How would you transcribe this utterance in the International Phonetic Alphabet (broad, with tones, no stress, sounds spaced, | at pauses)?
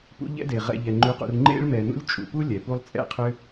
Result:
p ṵ˦ ʎ ɛ̰˥ d e˩ ʁ ɛ̰˨ ʎ ɛ˩ ŋ͡ǃ ʉ˨ q ṵ˨ r ŋ͡ǃ ḛ˥ ɭ m ɛ˨ n ṵ˥ lʲ t͡ʃʼ ṵ˨ p u˥ lʲ ɛ˩ p u˦ lˠ t͡sʼ ɛ̰˥ qʰ ʏ˦